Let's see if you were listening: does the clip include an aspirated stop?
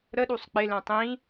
no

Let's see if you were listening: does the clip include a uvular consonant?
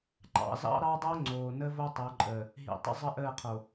yes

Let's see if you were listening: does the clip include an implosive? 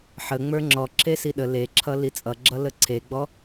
yes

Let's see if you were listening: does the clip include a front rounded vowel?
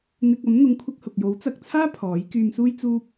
yes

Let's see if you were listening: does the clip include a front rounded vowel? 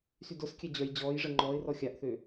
yes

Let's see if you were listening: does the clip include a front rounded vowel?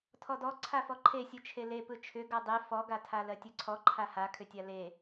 yes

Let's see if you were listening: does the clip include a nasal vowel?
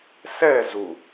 no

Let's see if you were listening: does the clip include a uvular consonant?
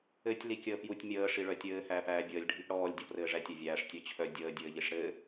no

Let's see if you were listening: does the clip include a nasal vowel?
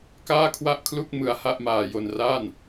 no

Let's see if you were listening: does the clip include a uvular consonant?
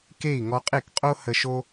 yes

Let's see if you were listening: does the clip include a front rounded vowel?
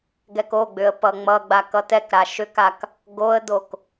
yes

